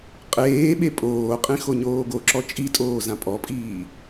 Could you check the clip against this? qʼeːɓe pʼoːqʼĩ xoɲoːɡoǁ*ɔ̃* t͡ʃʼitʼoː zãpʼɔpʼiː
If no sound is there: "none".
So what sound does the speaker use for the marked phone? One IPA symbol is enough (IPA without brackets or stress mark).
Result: ɔ